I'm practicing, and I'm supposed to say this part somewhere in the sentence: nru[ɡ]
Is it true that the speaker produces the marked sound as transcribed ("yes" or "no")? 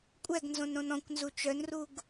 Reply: yes